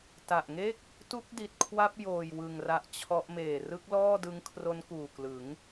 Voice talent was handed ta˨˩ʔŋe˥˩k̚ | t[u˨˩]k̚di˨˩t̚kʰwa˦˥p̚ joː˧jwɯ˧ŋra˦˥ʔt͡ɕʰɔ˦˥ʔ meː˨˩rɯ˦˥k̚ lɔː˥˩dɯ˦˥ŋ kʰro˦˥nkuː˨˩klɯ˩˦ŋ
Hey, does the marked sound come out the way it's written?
no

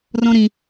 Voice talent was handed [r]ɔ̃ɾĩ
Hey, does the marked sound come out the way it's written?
yes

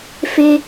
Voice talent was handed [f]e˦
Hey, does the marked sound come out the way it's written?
yes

